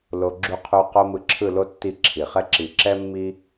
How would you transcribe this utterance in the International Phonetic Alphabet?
lo˨ ɡ͡ǁu˨qʰu˨ qo˧ mɯ˧ǁʰɯ˦˨lo˦ tːi˦˨ǁʰi˨χɛ˦ ǁi˨ǁɛ˦mːi˦

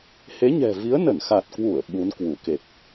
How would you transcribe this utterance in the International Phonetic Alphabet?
he˨˦ɲɛ̤˨˩vi˨˦ə̯nə˧˩n xa˨˩t̚kwu˧˩ə̯ ɓu˨˦n kwu˧˩ke˨˩k̚

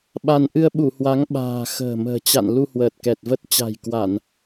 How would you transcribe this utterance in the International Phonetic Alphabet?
ɓa˧n ʔɨ˧ə̯ɓu˧˩hwa˨˦ŋ ɓa̤ː˨˩ xə̤ː˨˩mə̤ː˨˩ t͡ɕa̰˧˨n lu˧hwəː˨˩t̚kɛ˨˩t̚və˦˥t̚ t͡ɕa̤˨˩jkwa˧˩˨n

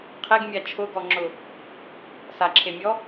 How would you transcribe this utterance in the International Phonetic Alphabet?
qʰeɡmʲa t͡ʃʰʊɡɔŋ͡ǁʊ | saǁʰemʲɔ

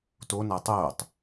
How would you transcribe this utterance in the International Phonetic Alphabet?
tona tˤoːtˤ

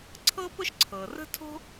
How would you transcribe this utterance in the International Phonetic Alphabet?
ǀʰɤ˥pʊ˥ʃ ǀʰɤ˩rə̤˥tʰo̤˥

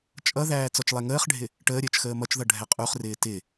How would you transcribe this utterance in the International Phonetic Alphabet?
t͡ʃʼʌðæː t͡sɔt͡ʃlˠɛŋəːχɖʱɪ | ʈəːɾʲəːt͡ʃ xəːmʌt͡ʃðʌ ɖʱɛqʼuχrɪː tɪ

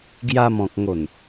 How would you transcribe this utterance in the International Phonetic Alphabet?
ɡja˧mɔ̃˨k̚ŋo˨˩n

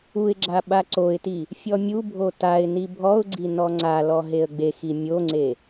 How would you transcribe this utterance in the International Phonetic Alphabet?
uɪ̯ɡ͡ǁa ɓaǀoɪ̯ti | fʲɔmʲubʱo taɪ̯ nibʱɔʊ̯ɡ͡ǀi nɔŋ͡ǀalɔ ɦeə̯ɡ͡bexi mʲoŋ͡ǀe

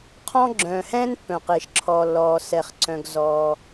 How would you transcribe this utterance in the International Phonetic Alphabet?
qʰɔ̃˥ɡ͡ǁœ̃ː˩ hɛ̃ː˥n pːœ̃˩qɪː˩ʃǁʰɔː˩lːɔː˩ sɛ˩χ ǀœ̃˩ɡzɔː˩

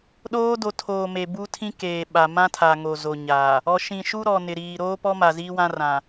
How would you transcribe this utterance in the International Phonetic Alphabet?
ɗoː˦ do˨tʰoː˨ me˨ bu˦tʰĩ˦keː˨ ɓa˨ mã˦tʰa˨ ŋo˨zo˨ ɲa˨ | ɔ˨ʃĩ˨ʃu˦ɾɔ˨ nɪ˨ɾiː˨ ɾoː˦pɔ˦ma˨ ziː˦wã˦rã˨

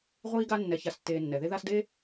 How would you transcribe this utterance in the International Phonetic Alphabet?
ʁʷiː˦ɡa˦ nːɛ˨ça˨stːeː˨nːɛ˩ ðe˦ða˦sde˥

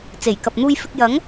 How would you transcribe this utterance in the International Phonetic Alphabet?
t͡se˨˩jkɐ˨p̚n̪uː˧jfɪ˧k̚ jɐ˨˥ŋ

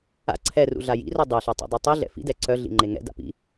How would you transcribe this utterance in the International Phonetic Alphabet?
a̰ ǀʰɛrṵ ɮajḭro dˤeɬa tˤṵdˤɛtˤiɮɛ̰ fḭdɛ ǀœɮḭ ŋ͡ǃeŋɛ̰da̰ pḭ

